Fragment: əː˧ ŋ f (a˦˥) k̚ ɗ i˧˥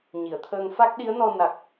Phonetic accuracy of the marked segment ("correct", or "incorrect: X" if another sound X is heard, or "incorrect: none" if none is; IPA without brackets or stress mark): correct